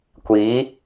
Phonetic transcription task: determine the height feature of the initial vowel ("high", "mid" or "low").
high